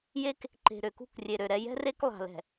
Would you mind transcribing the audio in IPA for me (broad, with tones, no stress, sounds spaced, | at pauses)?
j e˦ k | ǃ e̤˨ ɾ ø˨ k ṳ˦˨ k rʲ e˨ ɾ ø˨ ɾ ɛ˦ j ɛ̤˦ r e˦ k lˠ a̤˨ l ɛ̤˨